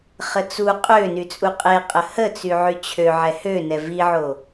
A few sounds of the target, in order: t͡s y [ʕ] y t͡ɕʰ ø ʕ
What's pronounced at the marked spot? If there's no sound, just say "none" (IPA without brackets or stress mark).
ʕ